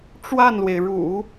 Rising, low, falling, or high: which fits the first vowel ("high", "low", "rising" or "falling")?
falling